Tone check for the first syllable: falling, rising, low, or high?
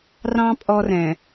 high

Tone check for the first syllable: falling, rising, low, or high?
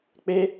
high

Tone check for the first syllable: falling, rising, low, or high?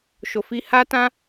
low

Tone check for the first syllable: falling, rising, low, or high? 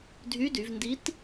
rising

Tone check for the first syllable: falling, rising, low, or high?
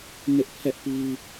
high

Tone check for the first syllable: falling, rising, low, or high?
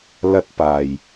high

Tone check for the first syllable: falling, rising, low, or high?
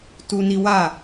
high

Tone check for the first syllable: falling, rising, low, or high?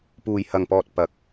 low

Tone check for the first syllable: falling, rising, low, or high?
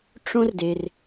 high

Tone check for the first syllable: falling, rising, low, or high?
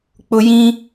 high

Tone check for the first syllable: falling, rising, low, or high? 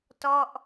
falling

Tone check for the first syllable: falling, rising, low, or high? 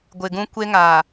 low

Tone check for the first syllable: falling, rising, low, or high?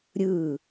falling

